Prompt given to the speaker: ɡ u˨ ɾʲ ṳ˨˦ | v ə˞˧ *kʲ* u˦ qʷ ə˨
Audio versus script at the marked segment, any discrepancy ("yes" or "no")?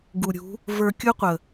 no